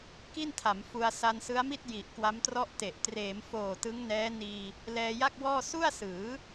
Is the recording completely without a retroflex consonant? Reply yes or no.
yes